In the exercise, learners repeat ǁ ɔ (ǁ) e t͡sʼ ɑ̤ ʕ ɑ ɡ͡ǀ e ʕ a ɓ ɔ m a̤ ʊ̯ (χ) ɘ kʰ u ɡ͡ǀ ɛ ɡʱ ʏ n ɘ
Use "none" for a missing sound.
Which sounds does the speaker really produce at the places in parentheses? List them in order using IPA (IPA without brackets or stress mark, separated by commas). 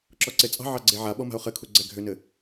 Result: ǀ, χ